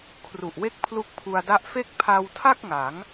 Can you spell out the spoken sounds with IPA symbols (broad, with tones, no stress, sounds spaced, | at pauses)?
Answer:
kʰ r u˨˩ ʔ w e˦˥ k̚ pʰ l u˦˥ k̚ pʰ u˧ a̯ d a˦˥ ʔ f e˥˩ k̚ pʰ a˧ w tʰ a˥˩ k̚ ŋ a˩˦ ŋ